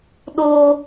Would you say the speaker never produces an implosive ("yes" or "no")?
no